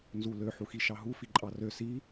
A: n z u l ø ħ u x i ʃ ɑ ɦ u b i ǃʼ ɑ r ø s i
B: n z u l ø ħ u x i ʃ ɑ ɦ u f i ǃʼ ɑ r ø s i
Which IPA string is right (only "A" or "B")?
B